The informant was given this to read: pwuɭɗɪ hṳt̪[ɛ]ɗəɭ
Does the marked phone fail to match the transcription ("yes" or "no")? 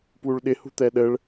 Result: no